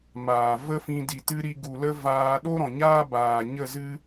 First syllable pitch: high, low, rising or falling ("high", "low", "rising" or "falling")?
low